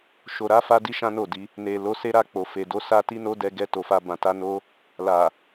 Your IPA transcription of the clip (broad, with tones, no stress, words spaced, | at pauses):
ʃo˨ɾa˨˦fa˧di˧ ʃã˦no˦˨di˨˦ | ne˨ lo˨˦se˦ɾa˧k͡po˨ fe˨do˧ sa˦ti˦no˦ dɛ˧ɡɛ˧ to˨fa˧ bã˨ta˧ no˦ | la˨